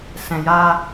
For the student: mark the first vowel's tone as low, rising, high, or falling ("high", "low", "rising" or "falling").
low